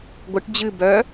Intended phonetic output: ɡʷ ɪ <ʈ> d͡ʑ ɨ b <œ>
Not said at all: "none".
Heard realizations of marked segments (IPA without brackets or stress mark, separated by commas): ʈ, œ